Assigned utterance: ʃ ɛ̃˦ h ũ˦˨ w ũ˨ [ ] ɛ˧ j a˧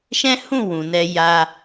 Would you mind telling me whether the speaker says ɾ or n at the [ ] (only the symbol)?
n